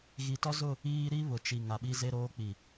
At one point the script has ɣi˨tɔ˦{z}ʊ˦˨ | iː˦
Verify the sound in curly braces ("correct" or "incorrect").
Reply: correct